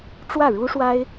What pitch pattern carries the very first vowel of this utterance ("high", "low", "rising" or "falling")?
falling